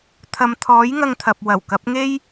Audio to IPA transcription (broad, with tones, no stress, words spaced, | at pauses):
t̪ʰɐ˨mt̪ʰɔː˨˥j ŋɐ˧ŋt̪ʰɐ˨p̚ wɐ˨˩wkɐ˨˥p̚ŋe˥j